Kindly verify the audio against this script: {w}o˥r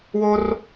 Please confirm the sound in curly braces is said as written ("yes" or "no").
yes